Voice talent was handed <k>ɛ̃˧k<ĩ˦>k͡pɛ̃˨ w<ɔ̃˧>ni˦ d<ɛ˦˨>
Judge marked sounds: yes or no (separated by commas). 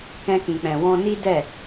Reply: yes, no, yes, yes